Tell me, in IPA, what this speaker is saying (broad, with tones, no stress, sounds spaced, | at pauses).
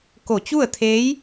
k o˧˩ t͡ɕ u˥˨ ə̯ t̪ʰ eː˧˥ j